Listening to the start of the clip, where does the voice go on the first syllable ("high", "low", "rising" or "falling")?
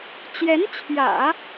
rising